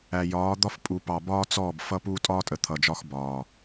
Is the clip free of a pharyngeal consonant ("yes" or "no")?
yes